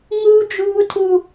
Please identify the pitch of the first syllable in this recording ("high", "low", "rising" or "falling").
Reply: high